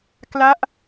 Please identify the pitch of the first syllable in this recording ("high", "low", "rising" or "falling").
falling